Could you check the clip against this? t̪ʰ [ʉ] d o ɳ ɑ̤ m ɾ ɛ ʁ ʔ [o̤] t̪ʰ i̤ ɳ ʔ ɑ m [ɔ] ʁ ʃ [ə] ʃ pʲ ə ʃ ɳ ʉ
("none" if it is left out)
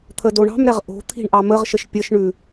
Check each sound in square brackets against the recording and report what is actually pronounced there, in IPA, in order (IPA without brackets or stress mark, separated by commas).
ə, o̤, ə, ə